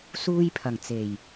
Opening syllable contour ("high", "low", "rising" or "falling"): high